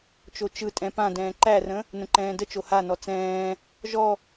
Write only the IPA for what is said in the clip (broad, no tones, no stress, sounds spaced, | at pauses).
t͡ʃ o t͡ʃ ɯ tʼ ɛ̃ p ã d ɛ̃ː ǃ æ r ə̃ | n ə̃ ǃ ɛ̃ː d ə t͡ʃ o h a n ɔ t͡s ɛ̃ː | ʒ ɔ